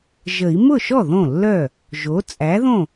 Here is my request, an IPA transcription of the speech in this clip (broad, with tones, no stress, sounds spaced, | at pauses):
ʒ ə˨˩˦ i̯ m ʊ˥˩ ʃ ɔ˥˩ ð õ˥˩ lː œ˥˩ | ʒ o˩˥ t͡sʼ æ˩˥ ð õ˥˩